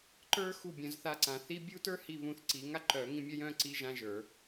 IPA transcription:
ǃ ə˞˥ x u˦˨ bʲ œ̃˨˩˦ z θ a˦˨ ǀ ã˨˩˦ θ i˧˥˧ bʲ u˥ t ə˞˥ h i˦˨ β ũ˦˨ θ ǀ i˨˩˦ ŋ a˥ ǃ œ˨˩˦ ŋ ĩ˧˥˧ mʲ œ˥ j œ̃˧˥˧ ǀ i˧˥˧ ʒ ã˧˥˧ ʒ ə˞˨˩˦

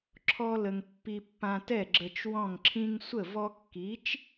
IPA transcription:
ǁʰ ɔ˥ l ə˧ ŋ pː i˧ pː ã˧ t ɛ˥˩ ɡ͡ǁ ə˧ t͡ʃ w ɔ̃˥˩ ŋ ǁʰ ĩ˥ ŋ sʷ ə˥˩ v ɔ˥ kː i˩˥ t͡ʃ

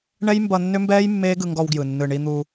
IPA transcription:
ɳ ɛ˦ j m b ʌ˧ nː ʏ˦ m b ɛː˦ j mː eː˦ ɡ ɯ˧ ŋ ɡ ɔ˧ w ɡ j ɯ˨ nː ɯ˨ ɳ i˧ n̪ u˧

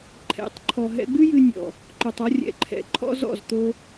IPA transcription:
ǃʰ ɛ̰˨˦ tˤ ǃʰ ɔ˨ ɦ ɛ̰˧ ɡ͡b ɨ˦ j ɨ˧ nʲ ɔ̰˨ | ǃ o˨ tˤ ɔ˧ rʲ ɛ̰˨ ǃʰ ɛ̰˨˦ ǃʰ ɔ̰˧ z ɔ̰˦˨ z t̪ o˧

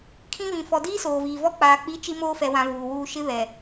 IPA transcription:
kʰ ĩ˦ β ĩ˨ f ɔ˨ d iː˦ s oː˨ v iː˨ v ɔ˦ k͡p aː˨ k͡p i˨˦ t͡ʃ i˦ m oː˦ f ɛ˨ w ã˨ v uː˨ w uː˦ ʃ ɪ˦ β ɛ˨

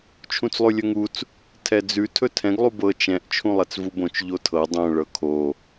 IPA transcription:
t͡ʃʰ ũ t͡s lˠ ʉ lʲ ɵ ŋ u t͡s | tʰ ɛ d͡z ʉ tʰ ɵ tʰ ɛ̃ ɡ lˠ u b ɤ t͡ʃ ɛ̃ ʔ t͡ʃʰ ũ lˠ ɛ t͡s v u b õ t͡ʃ ʎ o tʰ ɤ dˤ õ ɭ ɤ kʰ o

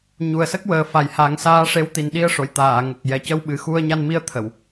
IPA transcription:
ɲ u˨˩ ə̯ s ə˦˥ k̚ w əː˨˩ f a˨˩ j h a˨˩˦ ŋ s aː˧˥ ʂ e˧˥ w t̪ i˨˩ n ɗ i˧ ə̯ ʂ o˨˩˨ j t̪ aː˨˩˨ ŋ ə˨˩ k̚ j ɛ˨˩ c ə˧ w ɓ ɨ˨˩ x u˧ ə̯ ɲ a˧ n m i˧ ə̯ t̪ʰ ə˨˩˨ w

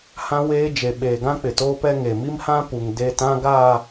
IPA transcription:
h ã˦ w eː˦ d͡ʒ e˨ ɓ eː˨ ɡ ã˦ k͡p ɪ˨ t oː˦ p ɛ˦ ŋ e˨ m i˦ m h ã˦ p u˨ ŋ d e˦˨ t ã˦ ɡ aː˦˨

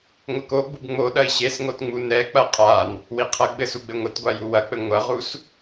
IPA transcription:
ŋʷ ɘ k o ɡ͡b u b ŋ͡m o ɗ ɐ i̯ ɕ e s ŋ o t ŋ͡m u n ɛ k͡p ɐ qʼ a n | w i qʰ ɐ ɡ͡b ɘ s u ɡ͡b ɘ ŋʷ ɘ t ɡʷ a j u w ɐ k͡p ɘ ŋʷ ɐ ʁ u s

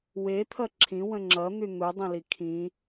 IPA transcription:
w e t̪ʰ ʌ ǁʰ ĩ w ə̃ ŋ͡ǁ ʌ n̪ y n̪ u dˤ ĩ l i kʰ ĩ

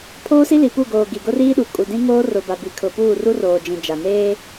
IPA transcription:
pʰ oː˦ s i˦ l i˨ p u˦˨ ɡ oː˨ ɡ i˨ ɡ ʊ˦ r iː˦ ɗ u˨ kʼ u˨ d ĩ˦ ŋ oː˦ r ʊ˨ b a˨ b i˨ kʰ ʊ˨ p uː˦˨ r u˦ r oː˨ d͡ʒ ĩ˨ d͡ʒ a˨ n eː˦

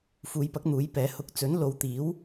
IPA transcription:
f uː˨˧ j p ɐ˨˥ k̚ n̪ uː˨˥ j p ɛː˨˥ h ʊ˧ k̚ t͡s ɵ˨˥ n l o˨˧ w t̪ iː˨˥ w

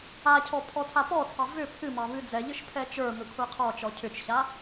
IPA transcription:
a cʰ ɔ pʰ ɔ tʰ a p ɔ tʰ ɑ v ʏ pʰ ɨ m ɑ β ɨ d͡z ɛ ʎ ɨ ʃ pʰ ɛ t͡ʃ ə˞ m ʏ kʷʰ a qʰ ɔ t͡ʃ ɔ cʰ ʏ t͡ʃ ɕ a

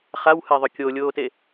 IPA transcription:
χ a w h e ðˤ ʏ kʲ o lʲ oː t e

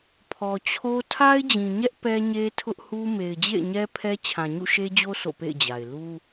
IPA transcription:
pʰ ɔ˨ t͡ɕʰ o˦ tʰ a˦ ɪ̯ d͡ʑ ĩ˨ ɲ ɛ˦ ʔ p ɛ˦ ɲ e˦ tʰ ʊ˦ ʔ h u˦ m e˨ ɪ̯ d͡ʑ ḛ˦˨ ɪ̯ ɲ ɛ˦ pʰ ɛ˦ t͡ɕʰ ã˨ ɲ ṵ˦˨ ʃ e˦ d͡ʑ o˦ s o̰˦˨ p ḛ˦˨ ɪ̯ d͡ʑ a˨ ɪ̯ l u˦

